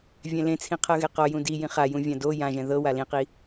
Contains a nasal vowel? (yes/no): yes